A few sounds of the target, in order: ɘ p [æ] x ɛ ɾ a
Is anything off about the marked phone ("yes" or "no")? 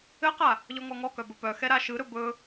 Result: yes